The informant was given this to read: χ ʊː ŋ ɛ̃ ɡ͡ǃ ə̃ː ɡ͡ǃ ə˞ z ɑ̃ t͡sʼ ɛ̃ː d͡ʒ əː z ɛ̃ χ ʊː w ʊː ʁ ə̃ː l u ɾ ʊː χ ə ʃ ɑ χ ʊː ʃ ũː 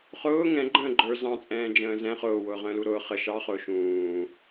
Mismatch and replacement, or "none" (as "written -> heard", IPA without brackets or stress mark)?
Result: əː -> ə̃ː